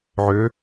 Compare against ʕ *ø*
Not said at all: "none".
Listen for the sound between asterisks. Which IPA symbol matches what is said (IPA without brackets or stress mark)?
ø